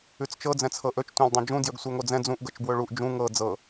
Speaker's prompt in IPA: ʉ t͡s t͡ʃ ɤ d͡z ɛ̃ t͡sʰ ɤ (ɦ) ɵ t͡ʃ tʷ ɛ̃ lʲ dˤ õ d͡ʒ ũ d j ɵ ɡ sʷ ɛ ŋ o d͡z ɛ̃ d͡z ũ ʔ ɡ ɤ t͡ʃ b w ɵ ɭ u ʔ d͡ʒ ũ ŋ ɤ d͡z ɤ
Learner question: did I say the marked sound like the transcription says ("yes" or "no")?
no